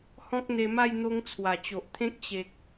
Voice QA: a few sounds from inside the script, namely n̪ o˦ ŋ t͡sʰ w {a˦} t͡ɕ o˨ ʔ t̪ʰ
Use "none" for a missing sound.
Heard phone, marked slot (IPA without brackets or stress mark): a˨˩